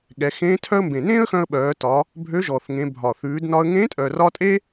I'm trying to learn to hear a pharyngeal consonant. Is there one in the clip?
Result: no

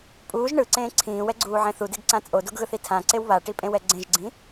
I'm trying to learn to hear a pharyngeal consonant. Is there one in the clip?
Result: yes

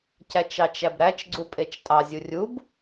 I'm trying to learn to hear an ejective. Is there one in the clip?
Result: yes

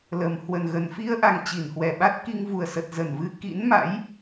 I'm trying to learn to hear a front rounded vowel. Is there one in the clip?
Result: no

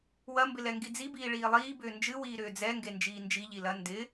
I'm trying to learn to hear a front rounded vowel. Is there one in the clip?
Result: yes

